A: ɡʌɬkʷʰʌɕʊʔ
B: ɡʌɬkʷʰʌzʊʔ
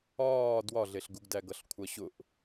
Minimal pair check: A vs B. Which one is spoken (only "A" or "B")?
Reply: A